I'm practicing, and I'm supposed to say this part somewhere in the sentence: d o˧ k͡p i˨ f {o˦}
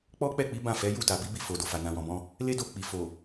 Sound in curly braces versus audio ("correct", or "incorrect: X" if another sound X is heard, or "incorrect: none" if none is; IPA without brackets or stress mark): incorrect: o˨